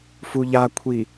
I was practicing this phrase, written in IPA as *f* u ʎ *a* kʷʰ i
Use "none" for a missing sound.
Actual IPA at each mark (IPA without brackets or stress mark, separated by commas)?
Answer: f, a